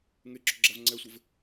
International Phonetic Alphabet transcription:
ŋ e ǁ o ɡ͡ǁ a v ŋ͡ǀ ɛ sʷ ɪ v

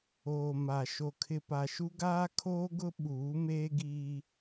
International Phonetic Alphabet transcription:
oː˨ m a˨ ʃ o˨ kʰ ɪ˨ p a˨ ʃ u˦ ɡ aː˦ kʰ oː˦ ɡ ʊ˦ ɓ uː˨˦ m eː˦ ɡ iː˦

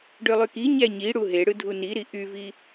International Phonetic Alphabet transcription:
ɖ ø lˠ y k i ɲ æ ɲ i ɽ u ɦ e ɽ ɯ dʱ u n i ɾ i ʔ y v i

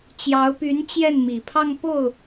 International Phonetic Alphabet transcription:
t͡ɕ j ɑ˧˥ ʊ̯ p y˧˥ n t͡ɕ j ɛ˥˩ n m i˨˩ pʰ ɑ˥˧ ŋ p o˥˩ ʊ̯

